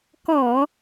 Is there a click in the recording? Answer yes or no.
no